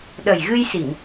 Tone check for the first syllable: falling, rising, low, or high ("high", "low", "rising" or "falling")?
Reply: low